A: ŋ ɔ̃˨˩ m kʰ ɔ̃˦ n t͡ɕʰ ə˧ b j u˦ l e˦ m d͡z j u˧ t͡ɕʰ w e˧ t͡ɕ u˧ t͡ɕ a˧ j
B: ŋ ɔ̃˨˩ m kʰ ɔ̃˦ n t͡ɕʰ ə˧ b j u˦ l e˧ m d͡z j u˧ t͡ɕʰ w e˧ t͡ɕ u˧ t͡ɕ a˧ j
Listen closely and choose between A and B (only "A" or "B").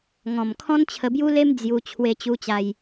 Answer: A